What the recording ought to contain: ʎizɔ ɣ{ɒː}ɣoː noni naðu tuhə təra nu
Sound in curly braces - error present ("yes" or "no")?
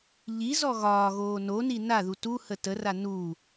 no